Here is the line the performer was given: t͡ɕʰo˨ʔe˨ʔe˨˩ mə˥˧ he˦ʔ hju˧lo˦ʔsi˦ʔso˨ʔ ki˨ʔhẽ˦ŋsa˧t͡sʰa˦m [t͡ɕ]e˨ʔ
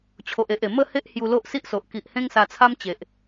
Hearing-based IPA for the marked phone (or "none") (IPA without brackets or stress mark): t͡ɕ